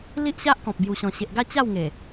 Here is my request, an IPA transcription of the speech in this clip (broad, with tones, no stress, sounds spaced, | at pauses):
l i˦ ʔ ɕ a˦ ʔ k ɔ̃˨ p̚ b j u˨˩ ɕ ɔ̃˨˩ ɕ e˨ ʔ ɡ a˥˧ t͡ɕ a˥˧ w ŋ e˨˩